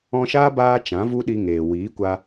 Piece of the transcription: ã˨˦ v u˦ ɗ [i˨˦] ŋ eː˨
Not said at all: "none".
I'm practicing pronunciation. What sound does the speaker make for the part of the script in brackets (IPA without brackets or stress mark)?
i˧